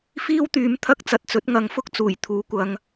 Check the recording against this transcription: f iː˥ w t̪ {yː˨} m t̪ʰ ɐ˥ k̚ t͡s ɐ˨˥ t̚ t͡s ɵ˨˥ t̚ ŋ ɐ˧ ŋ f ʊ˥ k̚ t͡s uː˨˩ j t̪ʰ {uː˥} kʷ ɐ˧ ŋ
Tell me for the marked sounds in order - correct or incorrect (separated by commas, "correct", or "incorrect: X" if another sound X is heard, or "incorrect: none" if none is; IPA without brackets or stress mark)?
incorrect: yː˨˥, incorrect: uː˨˥